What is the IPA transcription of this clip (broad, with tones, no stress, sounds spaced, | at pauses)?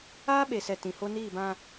aː˦ ɓ e˨ s ɛ˨ t ĩ˨ h o˦ n iː˦˨ b ã˦